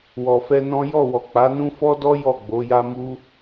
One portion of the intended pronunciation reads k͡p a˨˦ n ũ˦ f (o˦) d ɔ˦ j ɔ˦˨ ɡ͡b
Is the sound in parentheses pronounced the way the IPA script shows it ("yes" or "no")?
no